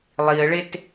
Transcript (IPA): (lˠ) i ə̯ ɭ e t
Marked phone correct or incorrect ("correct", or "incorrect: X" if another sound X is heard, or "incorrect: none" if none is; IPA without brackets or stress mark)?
correct